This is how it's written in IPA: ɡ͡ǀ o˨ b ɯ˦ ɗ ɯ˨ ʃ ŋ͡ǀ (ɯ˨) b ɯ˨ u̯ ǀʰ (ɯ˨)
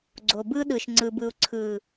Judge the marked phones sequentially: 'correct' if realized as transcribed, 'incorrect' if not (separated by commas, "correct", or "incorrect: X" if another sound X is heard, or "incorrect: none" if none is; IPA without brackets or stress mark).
correct, correct